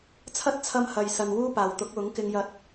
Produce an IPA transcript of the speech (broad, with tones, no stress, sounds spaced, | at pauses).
t͡sʰ ɐ˥ t̚ t͡sʰ ɐ˧ m h ɐ˨ j s ɐ˨ n w uː˥ p aː˨ w t̪ ʊ˨˥ k̚ w ʊ˨˥ ŋ k ɪ˥ ŋ j ɐ˥ t̚